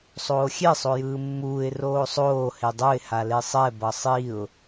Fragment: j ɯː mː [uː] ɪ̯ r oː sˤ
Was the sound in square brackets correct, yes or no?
yes